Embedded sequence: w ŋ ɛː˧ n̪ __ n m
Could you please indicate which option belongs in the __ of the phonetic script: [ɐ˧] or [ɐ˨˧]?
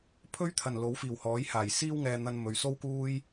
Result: ɐ˧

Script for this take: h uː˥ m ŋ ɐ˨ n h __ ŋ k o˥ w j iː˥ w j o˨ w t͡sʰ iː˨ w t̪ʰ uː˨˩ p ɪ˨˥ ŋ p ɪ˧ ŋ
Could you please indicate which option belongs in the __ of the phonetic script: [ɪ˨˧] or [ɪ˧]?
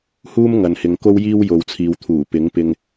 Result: ɪ˨˧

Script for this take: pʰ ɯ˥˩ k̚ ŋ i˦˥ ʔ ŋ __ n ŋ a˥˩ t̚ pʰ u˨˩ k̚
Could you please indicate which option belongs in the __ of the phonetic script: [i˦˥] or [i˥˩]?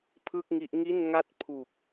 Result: i˥˩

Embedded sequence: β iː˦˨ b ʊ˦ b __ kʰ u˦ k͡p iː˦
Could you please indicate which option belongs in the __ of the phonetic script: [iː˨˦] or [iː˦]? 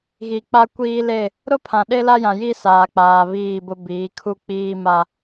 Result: iː˨˦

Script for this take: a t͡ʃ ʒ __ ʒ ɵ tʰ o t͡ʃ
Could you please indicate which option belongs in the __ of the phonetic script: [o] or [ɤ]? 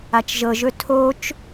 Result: ɤ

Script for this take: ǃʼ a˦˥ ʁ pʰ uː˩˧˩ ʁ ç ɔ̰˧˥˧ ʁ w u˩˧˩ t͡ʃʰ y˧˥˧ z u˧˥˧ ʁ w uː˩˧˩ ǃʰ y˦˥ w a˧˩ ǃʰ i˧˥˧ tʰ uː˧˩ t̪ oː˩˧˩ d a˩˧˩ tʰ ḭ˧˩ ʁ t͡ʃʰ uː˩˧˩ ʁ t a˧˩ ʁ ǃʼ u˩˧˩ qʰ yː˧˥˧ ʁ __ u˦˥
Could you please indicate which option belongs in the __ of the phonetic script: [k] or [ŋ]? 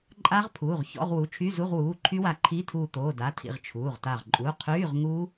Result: ŋ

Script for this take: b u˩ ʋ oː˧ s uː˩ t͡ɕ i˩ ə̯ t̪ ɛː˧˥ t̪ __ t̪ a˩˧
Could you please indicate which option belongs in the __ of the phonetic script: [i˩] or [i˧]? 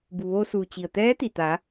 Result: i˩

